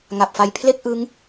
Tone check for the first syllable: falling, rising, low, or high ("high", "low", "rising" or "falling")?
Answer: low